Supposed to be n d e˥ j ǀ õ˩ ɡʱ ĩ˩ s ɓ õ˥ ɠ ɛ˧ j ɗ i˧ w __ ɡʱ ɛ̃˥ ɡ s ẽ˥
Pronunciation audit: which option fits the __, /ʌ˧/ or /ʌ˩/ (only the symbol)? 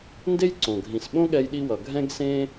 ʌ˩